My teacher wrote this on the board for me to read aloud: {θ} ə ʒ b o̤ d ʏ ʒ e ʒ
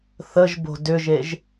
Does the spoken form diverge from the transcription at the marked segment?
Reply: no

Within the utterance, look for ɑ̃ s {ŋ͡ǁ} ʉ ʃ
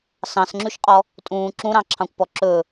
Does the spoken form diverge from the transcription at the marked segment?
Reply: no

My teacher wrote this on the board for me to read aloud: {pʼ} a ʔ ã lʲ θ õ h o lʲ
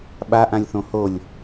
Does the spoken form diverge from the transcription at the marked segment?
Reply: yes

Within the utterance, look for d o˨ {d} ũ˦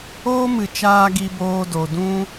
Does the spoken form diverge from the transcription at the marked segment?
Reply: no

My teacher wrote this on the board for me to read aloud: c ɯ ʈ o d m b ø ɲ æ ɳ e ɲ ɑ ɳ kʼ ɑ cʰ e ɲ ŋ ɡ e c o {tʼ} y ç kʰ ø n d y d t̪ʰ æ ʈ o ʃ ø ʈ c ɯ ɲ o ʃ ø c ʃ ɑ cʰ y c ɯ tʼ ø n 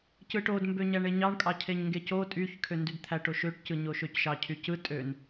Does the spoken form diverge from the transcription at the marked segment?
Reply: no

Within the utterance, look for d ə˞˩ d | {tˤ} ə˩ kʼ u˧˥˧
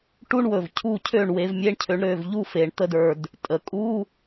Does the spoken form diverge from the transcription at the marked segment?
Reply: yes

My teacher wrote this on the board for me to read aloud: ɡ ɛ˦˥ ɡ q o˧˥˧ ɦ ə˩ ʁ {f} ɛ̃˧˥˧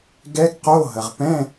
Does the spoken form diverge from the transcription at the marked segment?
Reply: yes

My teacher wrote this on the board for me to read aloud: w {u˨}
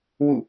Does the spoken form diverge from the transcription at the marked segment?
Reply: yes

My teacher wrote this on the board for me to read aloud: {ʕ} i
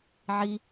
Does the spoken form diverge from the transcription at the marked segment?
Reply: no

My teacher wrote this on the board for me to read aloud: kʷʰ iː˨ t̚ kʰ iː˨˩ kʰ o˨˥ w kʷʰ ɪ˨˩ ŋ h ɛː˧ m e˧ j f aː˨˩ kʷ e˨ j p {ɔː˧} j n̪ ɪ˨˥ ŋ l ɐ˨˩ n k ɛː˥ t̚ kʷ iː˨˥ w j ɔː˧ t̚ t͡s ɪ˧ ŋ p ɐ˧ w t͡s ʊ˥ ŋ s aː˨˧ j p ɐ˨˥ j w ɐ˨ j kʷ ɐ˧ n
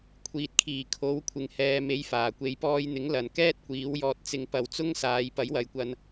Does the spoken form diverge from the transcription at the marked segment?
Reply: no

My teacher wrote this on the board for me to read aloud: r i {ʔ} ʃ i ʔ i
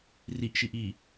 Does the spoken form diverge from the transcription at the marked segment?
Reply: no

